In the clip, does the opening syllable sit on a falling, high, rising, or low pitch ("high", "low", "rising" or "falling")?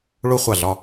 high